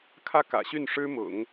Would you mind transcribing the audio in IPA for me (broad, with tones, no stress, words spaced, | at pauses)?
kʰä˥˩kä̰˨˩ɕy˥˩n ʂɻ̩˥mʊ̰˨˩˦ŋ